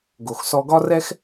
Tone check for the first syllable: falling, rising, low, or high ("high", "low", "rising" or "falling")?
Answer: low